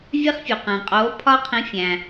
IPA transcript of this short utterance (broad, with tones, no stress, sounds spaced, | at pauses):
vʲ e˧ χ fʲ u˩ q æ̃˩ qʼ oː˩˥ pʰ ɒː˧ qʰ ĩ˩˥ fʲ æ̃˩